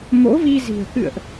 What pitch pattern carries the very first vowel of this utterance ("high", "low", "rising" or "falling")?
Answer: rising